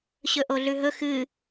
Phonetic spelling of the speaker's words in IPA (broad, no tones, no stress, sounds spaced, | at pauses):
ɕ ɵ ʔ o ɮ ʉ ɦ ɵ x ɨ